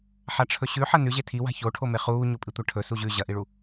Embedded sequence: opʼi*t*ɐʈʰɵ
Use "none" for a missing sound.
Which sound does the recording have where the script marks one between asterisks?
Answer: tʷ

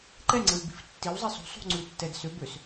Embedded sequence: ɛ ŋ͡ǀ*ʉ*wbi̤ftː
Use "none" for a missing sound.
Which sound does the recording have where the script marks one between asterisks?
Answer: ɘ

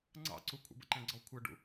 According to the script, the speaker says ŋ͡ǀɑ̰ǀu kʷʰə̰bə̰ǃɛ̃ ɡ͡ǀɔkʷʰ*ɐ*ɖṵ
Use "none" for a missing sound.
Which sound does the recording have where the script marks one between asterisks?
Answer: ɐ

